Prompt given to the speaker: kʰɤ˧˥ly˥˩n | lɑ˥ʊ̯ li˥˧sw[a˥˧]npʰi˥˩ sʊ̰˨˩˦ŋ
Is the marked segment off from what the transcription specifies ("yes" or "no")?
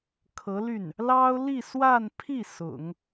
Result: no